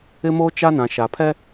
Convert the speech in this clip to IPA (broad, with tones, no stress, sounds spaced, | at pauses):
ɪ˦ m oː˦ t͡ʃ a˦ n ã˨ ʃ a˨ pʰ ɛ˦